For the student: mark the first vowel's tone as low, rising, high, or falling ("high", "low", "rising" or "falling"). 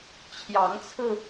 rising